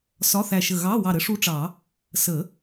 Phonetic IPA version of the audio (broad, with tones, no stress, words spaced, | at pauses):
sɒ˧˥˧θæ˧˩ʃə˧˩ ɣɑ˧˥˧ wɑ˧˩ɾə˧˥ʂu˧˥ʈ͡ʂɑ˨˩˦ | sə˨˩˦